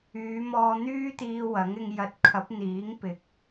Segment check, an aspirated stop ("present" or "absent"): present